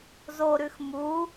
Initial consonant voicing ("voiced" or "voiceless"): voiced